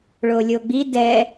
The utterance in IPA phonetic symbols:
ɭolʲoɡ͡bi dɛ

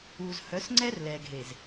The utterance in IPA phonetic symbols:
uː˨z hœ˨˦s ŋ͡ǀɛ˦r lɛː˨ɡʱe˨z

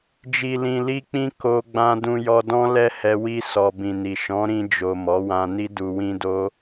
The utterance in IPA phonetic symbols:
d͡ʒi˨lĩ˨li˧k͡pĩ˧ ko˧ɡ͡bã˧ dũ˧jɔ˧dɔ̃˦lɛ˦ hɛ˧ wi˧sɔ˨ bĩ˨ni˨ ʃɔ̃˨˦ɾĩ˧d͡ʒo˨ mɔ˨˦wã˧ni˦ du˧wĩ˦do˦

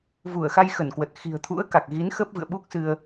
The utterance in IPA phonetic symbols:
vu˧˩ə̯xa˧jxə˧˩nkwə˨˩t̚ xi̤˨˩ə̯t̪ʰṵ˧˥ə̯ka˨˩k̚ɣi˨˦n xə˦˥p̚vɨ̰˧˨ə̯ɓu˦˥k̚sɨ˧ə̯

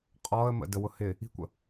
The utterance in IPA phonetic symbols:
qʼɔə̯mə̰dəwʊ hɪ | i̤kʷə̰

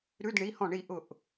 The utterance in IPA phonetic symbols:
ɾʉ˧˥˧dɳi˩˧˩hɔ̃˧˩ ɳi˧˩ʔʊ˧˩ʔ

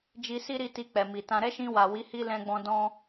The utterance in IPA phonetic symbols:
d͡ʒi˧si˦ɾi˧ ti˧ k͡pɛ˨mi˨tã˧ ɾɛ˦ʃĩ˧wa˨ wi˨˦ hi˦lɛ̃˧ɡ͡bɔ̃˧ dɔ̃˧

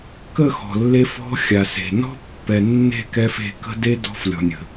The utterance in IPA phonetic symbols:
kə˦˨ xɔ̤˨lːe˧ fɔ̤˧ xʲa˨se̤˨nɔ̤˦ pːɛ˨nːe̤˦˨kɛ˧f e̤˧kə̤˦de˦ dɔ̤˧flʲɔ̤˨nʲə̤˨

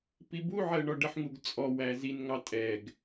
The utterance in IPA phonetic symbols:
pibuʕɜ ɳɔɖəħŋuɡ t͡sʼɔwæ zinŋɑ tʼɛɡ

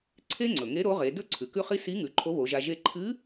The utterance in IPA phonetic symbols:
ǀʰe˥ŋ͡ǀɵ˩ŋe˧˥ ɾo˧˥ʁe˩˧dɵ˥ ǀʰʉ˩kʉ˥χi˥ si˧˥ŋʉ˩˧ ǃʰo˧˥βo˩˧ʒa˧ ʒe˧ǃʰɨ˧˥

